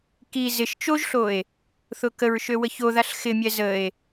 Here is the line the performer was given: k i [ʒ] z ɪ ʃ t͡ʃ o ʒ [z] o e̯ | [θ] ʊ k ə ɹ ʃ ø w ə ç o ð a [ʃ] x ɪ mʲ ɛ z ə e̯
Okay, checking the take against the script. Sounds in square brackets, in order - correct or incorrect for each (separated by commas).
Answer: incorrect, incorrect, correct, incorrect